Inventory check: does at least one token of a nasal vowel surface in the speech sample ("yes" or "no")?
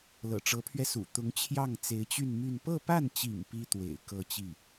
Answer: no